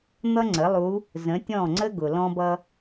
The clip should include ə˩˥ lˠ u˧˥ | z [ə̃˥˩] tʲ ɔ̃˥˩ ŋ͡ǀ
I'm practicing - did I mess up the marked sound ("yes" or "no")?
yes